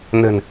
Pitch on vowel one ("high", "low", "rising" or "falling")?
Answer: low